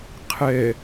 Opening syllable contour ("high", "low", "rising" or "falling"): low